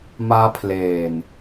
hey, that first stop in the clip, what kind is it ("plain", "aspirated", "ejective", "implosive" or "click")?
aspirated